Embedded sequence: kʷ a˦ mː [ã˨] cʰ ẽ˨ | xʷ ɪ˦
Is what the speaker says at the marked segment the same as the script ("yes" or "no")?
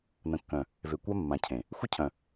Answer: yes